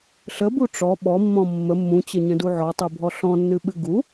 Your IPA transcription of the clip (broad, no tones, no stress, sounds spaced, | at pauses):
ɬ ə b u ʈ͡ʂ ɔ ɓ ɔ mː ɔ̃ mː ə mː ũ t͡ɕ ə ɲ ə̃ d u ʕ ɔ tˤ ɨ bʱ ɔ ɬ ɔ̃ nː ɨ ɓ ɨ ɡ u